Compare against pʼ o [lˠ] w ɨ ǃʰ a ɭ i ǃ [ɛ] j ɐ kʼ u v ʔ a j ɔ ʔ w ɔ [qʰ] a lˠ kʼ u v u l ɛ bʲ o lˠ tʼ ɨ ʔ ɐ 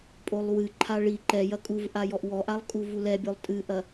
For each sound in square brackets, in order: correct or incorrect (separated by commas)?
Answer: correct, correct, incorrect